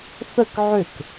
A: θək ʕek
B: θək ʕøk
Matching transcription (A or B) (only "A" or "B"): B